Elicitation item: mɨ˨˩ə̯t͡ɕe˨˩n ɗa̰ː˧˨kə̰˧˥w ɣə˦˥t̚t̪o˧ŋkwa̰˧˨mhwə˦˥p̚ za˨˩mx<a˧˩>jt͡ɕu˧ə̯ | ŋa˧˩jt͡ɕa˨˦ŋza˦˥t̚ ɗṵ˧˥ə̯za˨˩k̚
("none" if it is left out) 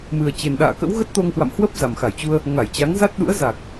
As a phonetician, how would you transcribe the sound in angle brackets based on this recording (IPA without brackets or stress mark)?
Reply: a˧˩